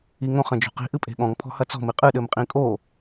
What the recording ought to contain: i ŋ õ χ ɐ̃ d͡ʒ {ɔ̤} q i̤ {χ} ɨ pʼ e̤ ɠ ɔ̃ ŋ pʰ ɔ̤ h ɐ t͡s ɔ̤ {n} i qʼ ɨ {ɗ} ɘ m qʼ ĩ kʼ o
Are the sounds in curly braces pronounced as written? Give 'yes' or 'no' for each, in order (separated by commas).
no, no, no, yes